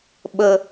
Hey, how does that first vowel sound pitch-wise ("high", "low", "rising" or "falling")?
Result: high